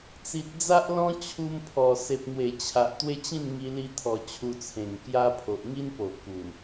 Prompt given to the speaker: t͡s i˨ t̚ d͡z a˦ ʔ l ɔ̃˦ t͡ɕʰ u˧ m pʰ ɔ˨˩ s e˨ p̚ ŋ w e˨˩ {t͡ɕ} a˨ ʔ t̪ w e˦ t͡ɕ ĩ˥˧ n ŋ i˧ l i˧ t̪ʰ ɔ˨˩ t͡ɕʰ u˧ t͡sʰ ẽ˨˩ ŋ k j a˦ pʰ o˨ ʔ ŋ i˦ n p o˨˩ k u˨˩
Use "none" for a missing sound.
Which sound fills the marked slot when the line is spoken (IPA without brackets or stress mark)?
t͡ɕʰ